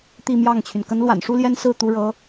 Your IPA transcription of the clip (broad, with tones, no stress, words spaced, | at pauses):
t̪i˥˧mjɑ˥˩ŋt͡ɕʰy˩n kə˧˥nlwa̰˨˩nʂu˥ljɛ˥n sɹ̩˥˩ t̪u˥ɻɤ˧˥